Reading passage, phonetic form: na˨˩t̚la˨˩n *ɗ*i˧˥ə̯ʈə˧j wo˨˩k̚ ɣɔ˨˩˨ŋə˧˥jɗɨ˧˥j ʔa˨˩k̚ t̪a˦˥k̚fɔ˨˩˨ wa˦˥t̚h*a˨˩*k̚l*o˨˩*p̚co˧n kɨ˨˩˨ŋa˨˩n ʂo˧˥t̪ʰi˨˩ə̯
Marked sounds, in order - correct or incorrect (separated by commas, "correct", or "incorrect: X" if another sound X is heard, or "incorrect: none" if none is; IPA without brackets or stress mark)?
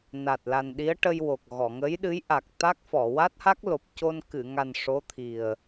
correct, incorrect: a˦˥, correct